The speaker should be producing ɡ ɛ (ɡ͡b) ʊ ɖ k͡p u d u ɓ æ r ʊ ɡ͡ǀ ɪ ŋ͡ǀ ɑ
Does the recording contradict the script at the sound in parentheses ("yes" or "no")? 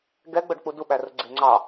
no